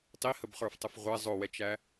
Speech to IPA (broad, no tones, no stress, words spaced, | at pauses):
tˤihəbχə˞ftˤəf ʁʷɛ zˤʊwɛt͡ʃæ